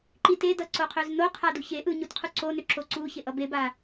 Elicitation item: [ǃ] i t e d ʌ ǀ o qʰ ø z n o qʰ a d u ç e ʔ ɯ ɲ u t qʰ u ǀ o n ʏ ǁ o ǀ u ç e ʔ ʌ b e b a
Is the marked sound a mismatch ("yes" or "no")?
no